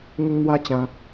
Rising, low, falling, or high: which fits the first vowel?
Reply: high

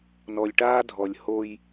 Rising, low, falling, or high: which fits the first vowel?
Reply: low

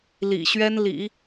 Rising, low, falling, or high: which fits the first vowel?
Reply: low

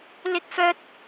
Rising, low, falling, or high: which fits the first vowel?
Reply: high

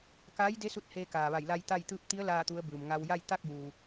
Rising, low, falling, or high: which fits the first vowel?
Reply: rising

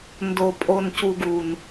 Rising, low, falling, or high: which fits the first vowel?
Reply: low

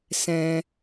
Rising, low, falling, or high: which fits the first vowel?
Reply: low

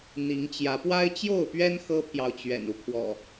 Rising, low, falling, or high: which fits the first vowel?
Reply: rising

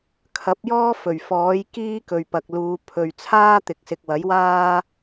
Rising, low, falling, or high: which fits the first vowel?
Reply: rising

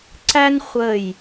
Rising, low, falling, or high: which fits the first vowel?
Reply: high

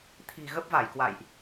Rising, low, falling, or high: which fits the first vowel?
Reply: low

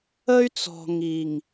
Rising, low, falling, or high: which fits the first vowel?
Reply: high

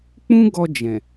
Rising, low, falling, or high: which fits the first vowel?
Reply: high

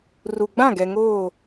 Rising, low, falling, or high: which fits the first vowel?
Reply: low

